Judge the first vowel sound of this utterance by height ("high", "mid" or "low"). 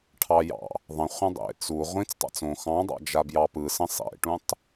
low